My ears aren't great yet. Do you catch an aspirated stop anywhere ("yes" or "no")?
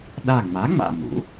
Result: no